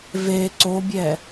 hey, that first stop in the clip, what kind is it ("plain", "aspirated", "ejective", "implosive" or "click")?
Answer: click